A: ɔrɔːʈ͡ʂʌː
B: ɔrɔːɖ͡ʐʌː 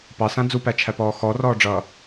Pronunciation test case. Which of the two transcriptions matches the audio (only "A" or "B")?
B